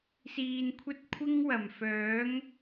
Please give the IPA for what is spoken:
s iː˨ n kʷʰ ɐ˥ t̚ kʷʰ ɪ˥ ŋ w ɐ˨˩ m f œː˨˥ ŋ

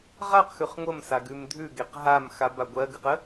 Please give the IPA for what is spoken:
ʁ a q x ʉ χ ŋʷ ə m s a ɡ ʉ m dʱ ʉ ɡ e q ɦ a m x a b a ɡʷ ɜ ɡ ɨ q ə

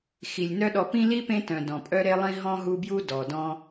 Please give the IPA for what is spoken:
x i˩ lʲ n œ˦ ɗ ɔ˨ p ĩ˥ l i˥ p ẽ˦ t œ̃˩ d ɔ̃˩ pʼ œ˦ ɾ e˦ lˠ ĩ˦ ɦ ɔ̃˥ ɦ u˦ b j u˥ d ɔ˩ d ɔ̃˦

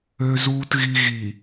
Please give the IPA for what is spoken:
ø˨ z uː˨ t ɣ i˨ ɣ i˨

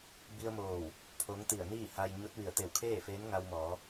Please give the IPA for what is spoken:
b i˧ ə̯ m oː˧˩ w | pʰ o˧˥ ŋ t̪ i˧˩ ə̯ n iː˥˨ h a˧ j ɲ o˧˥ t̚ ʋ i˧˩ ə̯ t̪ e˧˩ w kʰ eː˥˨ f eː˧˥ n ŋ a˧ w m ɔː˩˧

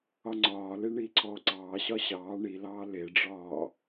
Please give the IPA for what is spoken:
ɒ ŋ͡ǀ ɒː l e ɳ iː ǀʰ ɔː ǀ ɑː ɕ ɒ ɕ ɑː ɳ i l ɑː l e ɖ͡ʐ ɒː

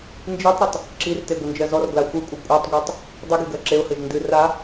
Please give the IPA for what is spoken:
n d͡ʒ i tˤ ɾ ɘ tˤ | ǁ i r t e ɡʷ ɘ n d͡ʒ ɜ z ɔ r ɡ l a xʷ ɨ kʷʼ ɨ kʷʼ ɜ tˤ ɡʷ e tˤ | dˤ ɨ ɡ i ɡ ɜ ǁ e ʊ̯ h ɘ ʒ n d ɨ r a

